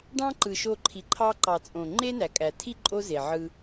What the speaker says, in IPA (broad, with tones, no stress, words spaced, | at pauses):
ɖɑ̃˦ǃɯ˨ʃo˧ ǃʰi˨ǃʰɑ˦ ǃɑ˨t͡sʼõ˨ ŋ͡ǃe˦næ˨kʼæ˨tʰi˦ ǃʼo˦ze˨ ʕɯ˧